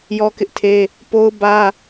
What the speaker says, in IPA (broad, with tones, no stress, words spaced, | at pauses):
jɔ˦kɪ˦ʔtʰe˦ | po˦ʊ̯bä˦